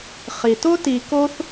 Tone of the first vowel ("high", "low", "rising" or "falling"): low